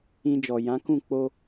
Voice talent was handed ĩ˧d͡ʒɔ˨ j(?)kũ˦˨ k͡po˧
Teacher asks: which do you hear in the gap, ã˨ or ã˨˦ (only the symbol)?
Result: ã˨˦